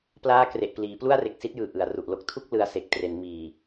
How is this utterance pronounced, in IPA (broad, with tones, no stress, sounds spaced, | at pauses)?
p l aː˦˥ k r e˨˩ ʔ p l iː˩˦ p l u˥˩ a̯ r e˨˩ k̚ s i˦˥ t̚ j ɯː˨˩ ʔ ɯ˩˦ a̯ r u˨˩ ʔ l o˦˥ k̚ tʰ u˥˩ k̚ l ɯ˧ a̯ s e˨˩ k̚ t r e˩˦ n m iː˨˩